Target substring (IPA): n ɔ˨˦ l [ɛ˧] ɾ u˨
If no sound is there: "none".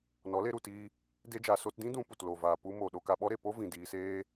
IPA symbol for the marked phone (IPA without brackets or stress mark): e˧